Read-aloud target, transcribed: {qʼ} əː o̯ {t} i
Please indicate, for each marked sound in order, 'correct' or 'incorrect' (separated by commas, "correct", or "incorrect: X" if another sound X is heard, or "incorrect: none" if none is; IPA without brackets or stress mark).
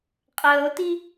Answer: correct, correct